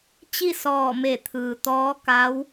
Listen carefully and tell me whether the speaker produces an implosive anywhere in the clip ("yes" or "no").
no